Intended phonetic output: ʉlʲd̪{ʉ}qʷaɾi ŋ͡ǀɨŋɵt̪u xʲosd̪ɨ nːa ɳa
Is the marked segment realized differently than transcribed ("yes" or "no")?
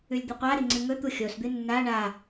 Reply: yes